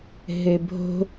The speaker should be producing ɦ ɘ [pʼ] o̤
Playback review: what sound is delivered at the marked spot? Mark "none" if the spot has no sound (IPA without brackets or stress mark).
bʱ